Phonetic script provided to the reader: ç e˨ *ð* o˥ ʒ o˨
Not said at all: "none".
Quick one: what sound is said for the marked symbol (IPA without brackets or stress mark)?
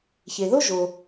ð